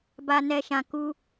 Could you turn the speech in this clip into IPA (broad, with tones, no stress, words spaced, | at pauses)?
ba˧nɛ˧ʃã˧ ku˦